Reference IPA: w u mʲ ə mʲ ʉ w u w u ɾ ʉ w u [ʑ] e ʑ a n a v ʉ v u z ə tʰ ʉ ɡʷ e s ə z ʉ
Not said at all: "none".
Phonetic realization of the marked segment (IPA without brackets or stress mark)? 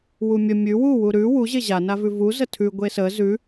ʑ